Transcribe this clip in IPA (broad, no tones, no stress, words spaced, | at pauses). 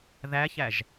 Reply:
ðæçæʒ